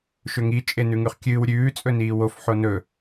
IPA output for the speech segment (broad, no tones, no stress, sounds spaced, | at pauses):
ʃ ɵ ŋ i t͡ʃʼ e n ʉ ŋ ʉ χ kʲ ɨː w ɾʲ ʉː t͡sʼ ɵ n iː w o f ħ o n ɵ